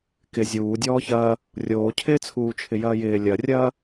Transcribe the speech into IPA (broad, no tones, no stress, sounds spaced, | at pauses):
k ɪ zʲ uː dʲ ɔː ç ɐː | rʲ oː cʰ ɪː t͡sʰ uː t͡ʃʰ ɪ j ɐː j ɪː lʲ ɐ rʲ ɐː